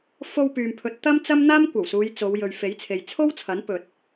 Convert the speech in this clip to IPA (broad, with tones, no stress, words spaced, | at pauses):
fo˧w pyː˨mpʰɵ˨˥t̚ t̪ɐ˥mt͡sɐ˥m n̪aː˥mkʷɐ˨˩wsuː˨˧j t͡so˨˧w jɵ˨ɥfe˨˥jt͡sʰe˨j t͡sʰo˥wt͡sʰɐ˨˥n pɵ˨t̚